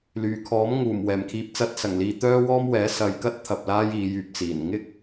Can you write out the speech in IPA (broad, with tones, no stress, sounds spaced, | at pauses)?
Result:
l yː˨˩ kʰ ɔː˨˥ m ŋ uː˨˩ m w ɛː˨˩ m kʰ iː˧ p̚ t͡s ɐ˧ t̚ s ɐ˨˩ ŋ l iː˨ t̪ œː˥ w ɔː˥ m w ɛː˨˥ s ɐ˨˧ j k ɐ˥ t̚ t̪ʰ ɐ˧ p̚ l aː˥ j iː˨˧ j yː˨ p̚ t͡s iː˨˩ n ŋ ɪ˥ k̚